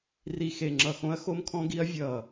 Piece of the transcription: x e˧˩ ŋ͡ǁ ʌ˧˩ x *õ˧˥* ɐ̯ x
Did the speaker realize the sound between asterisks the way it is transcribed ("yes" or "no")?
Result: yes